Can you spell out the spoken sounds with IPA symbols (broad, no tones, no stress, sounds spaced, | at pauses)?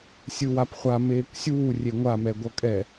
sʲ ɯ w a p χʷ a m eː kʷ sʲ uː rʲ e ŋʷ a m ɛ ɡʷ ʌ kʼ ɛ